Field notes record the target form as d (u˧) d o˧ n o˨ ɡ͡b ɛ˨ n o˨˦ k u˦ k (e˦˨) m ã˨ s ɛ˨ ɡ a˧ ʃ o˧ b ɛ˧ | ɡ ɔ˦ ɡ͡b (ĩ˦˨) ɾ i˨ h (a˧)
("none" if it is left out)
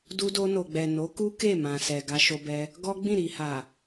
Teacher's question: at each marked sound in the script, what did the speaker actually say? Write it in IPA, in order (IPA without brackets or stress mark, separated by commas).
u˧, e˦˨, ĩ˦˨, a˨